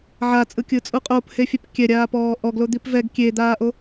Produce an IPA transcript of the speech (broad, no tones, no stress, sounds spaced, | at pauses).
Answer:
ʕ a t͡sʼ ɯ kʲ ɯ t͡sʼ u qʼ o p h e fʲ ɛ p kʲ ɛ ɾʲ aː p ɔː ʔ ɔ ɡ l o d̪ i p v ɛ ɡ kʲ e d̪ aː ʔ o